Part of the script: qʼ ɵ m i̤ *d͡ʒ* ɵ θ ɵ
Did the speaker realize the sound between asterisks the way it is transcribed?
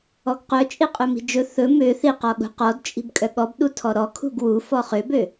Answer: yes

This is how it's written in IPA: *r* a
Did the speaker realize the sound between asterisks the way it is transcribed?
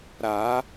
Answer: no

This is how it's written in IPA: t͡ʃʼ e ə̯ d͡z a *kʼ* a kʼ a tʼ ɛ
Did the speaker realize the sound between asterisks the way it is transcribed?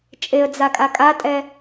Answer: yes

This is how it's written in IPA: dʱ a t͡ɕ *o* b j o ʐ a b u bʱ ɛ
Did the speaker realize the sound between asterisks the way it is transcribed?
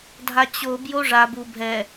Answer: yes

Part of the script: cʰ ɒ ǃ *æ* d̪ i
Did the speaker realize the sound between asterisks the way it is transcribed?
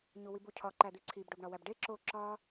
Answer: yes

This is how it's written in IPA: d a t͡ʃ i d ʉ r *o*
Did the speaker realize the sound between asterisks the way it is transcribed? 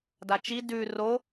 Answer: yes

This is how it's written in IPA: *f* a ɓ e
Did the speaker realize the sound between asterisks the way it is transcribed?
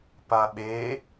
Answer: no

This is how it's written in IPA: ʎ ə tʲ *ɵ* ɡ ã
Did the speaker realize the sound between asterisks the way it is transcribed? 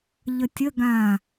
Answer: no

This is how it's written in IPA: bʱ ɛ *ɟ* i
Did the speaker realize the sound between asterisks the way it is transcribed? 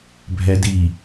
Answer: no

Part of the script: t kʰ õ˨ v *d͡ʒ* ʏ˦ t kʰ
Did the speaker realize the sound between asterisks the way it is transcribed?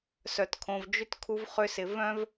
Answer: yes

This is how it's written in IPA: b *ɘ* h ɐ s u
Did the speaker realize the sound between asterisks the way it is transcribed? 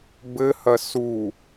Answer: yes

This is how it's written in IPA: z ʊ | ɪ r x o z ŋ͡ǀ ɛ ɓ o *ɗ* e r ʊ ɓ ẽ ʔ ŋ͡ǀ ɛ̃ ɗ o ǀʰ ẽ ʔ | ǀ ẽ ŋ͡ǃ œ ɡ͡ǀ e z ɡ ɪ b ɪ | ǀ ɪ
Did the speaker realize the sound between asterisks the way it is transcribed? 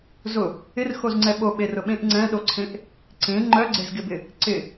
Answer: no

